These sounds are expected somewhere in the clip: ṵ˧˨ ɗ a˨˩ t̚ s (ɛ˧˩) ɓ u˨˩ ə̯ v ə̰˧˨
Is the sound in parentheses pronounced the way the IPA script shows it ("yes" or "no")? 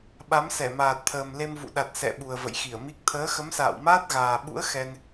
no